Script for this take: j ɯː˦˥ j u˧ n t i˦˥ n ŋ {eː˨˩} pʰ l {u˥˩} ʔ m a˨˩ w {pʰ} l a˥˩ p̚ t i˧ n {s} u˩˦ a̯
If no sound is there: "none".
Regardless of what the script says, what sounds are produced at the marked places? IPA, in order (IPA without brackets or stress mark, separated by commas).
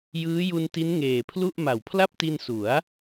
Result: eː˨˩, u˥˩, pʰ, s